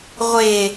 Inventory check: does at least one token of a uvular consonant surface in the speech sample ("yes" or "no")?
yes